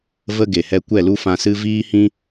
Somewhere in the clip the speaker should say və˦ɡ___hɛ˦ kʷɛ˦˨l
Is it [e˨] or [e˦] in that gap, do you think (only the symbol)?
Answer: e˨